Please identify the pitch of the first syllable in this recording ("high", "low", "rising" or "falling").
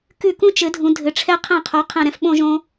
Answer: falling